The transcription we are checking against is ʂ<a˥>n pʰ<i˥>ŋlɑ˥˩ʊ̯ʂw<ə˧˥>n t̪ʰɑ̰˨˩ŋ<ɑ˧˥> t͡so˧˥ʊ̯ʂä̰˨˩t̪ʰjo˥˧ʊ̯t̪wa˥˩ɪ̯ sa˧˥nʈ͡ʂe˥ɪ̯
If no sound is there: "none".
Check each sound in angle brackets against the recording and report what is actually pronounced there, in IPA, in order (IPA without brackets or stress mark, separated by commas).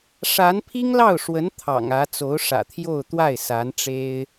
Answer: a˧˥, i˥, ə˧˥, ä˧˥